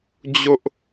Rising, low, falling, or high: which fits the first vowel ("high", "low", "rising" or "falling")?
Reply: high